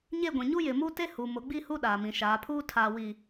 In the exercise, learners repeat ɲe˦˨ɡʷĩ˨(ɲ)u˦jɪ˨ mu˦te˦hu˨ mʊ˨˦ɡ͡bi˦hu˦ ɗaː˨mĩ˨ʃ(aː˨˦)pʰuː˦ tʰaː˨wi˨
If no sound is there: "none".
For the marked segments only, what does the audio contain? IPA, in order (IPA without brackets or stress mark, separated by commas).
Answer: ɲ, aː˨˦